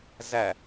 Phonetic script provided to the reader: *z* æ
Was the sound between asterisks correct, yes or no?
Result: yes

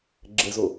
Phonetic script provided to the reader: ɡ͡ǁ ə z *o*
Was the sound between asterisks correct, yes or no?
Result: yes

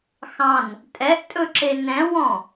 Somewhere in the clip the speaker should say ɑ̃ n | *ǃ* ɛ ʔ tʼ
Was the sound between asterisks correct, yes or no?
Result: no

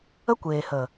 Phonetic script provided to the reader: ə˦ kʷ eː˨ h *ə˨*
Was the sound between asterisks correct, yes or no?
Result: yes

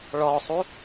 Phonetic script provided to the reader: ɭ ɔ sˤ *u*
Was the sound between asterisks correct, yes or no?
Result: yes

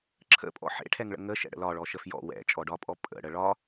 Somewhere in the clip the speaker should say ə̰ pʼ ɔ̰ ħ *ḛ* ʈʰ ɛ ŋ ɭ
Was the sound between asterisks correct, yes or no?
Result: yes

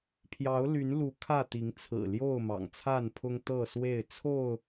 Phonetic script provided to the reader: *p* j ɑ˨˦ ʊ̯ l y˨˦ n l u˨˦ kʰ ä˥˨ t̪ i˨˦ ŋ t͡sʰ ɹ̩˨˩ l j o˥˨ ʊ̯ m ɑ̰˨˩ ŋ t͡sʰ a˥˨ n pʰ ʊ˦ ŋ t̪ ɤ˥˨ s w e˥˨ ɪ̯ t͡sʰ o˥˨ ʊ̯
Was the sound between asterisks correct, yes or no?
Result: no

